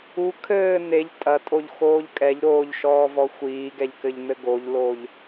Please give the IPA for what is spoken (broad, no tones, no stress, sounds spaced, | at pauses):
u kʰ ɘː n̪ e ʎ tʼ ɐ tʼ o ʎ x oː ʎ kʼ ɛ ʎ ɾ oː ʎ ʃ ɔː v ɔ xʷ iː ɡ ɛ ʎ k ɘ ʎ n̪ ɘ ɡ o ʎ l o ʎ